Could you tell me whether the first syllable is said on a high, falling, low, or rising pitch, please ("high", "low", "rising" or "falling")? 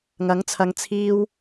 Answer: rising